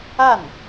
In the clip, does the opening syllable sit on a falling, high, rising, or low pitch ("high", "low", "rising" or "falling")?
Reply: falling